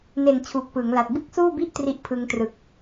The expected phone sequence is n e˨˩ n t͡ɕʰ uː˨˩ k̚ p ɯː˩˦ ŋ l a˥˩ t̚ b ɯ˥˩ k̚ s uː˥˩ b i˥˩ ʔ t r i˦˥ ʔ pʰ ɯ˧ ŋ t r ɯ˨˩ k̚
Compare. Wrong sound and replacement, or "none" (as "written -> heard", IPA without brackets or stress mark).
a˥˩ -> a˨˩